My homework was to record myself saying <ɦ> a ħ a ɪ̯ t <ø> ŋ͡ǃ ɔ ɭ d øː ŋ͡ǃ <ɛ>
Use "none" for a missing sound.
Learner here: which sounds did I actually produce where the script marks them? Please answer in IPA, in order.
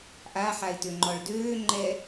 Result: ʔ, ø, ɛ

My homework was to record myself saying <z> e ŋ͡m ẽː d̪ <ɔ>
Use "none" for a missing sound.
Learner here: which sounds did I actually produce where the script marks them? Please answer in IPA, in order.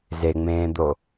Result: z, o

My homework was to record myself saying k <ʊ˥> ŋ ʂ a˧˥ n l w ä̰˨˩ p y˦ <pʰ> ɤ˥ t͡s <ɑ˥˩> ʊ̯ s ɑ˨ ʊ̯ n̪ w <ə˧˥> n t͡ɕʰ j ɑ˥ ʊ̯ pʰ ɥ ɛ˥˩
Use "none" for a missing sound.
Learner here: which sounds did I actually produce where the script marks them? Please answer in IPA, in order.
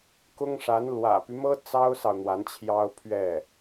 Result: ʊ˥, m, ɑ˥, a˧˥

